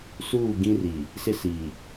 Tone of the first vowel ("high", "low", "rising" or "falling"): falling